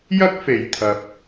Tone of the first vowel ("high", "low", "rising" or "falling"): high